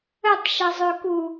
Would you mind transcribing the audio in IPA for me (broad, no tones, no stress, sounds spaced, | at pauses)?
ə tˤ ʃ ʌ zˤ ø k u